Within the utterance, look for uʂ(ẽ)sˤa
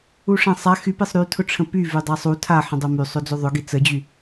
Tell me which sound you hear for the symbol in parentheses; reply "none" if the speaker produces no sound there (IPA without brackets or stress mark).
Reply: ẽ